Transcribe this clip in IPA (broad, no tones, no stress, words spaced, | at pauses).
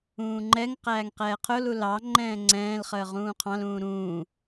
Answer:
ũːŋ͡ǃɛŋqæːŋ qɛːqʰʊlu lɑŋ͡ǃɛ̃ː ŋ͡ǀɛ̃ːlχəː ʁũːqʰɑ̃lũː ɾũː